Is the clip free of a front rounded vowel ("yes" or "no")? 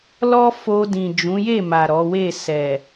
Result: yes